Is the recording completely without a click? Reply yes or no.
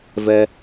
yes